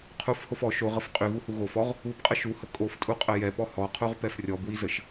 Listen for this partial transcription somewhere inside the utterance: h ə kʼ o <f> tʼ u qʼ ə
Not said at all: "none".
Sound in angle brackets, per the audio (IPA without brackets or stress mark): f